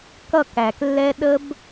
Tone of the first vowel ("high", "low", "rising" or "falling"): falling